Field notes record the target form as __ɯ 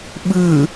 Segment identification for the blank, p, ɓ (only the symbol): ɓ